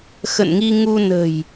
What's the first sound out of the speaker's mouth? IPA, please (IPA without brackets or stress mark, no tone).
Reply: x